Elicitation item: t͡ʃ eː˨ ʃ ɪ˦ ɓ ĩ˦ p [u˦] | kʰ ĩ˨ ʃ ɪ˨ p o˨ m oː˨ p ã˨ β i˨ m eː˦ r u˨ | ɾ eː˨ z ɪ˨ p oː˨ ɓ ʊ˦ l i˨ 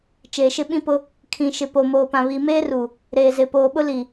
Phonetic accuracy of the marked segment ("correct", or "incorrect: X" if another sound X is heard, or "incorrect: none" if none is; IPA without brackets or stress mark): incorrect: ʊ˦